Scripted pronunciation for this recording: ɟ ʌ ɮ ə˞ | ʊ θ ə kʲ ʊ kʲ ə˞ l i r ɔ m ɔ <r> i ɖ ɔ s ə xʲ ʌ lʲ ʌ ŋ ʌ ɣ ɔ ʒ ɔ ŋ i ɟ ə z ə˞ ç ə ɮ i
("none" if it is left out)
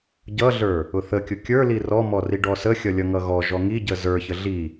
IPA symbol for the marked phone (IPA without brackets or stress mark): r